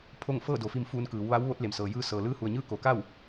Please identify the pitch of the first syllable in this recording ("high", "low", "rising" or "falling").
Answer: falling